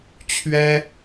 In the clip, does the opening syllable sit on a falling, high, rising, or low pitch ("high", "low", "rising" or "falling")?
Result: high